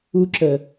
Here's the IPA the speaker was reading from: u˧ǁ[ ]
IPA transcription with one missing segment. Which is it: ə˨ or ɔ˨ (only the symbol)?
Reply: ə˨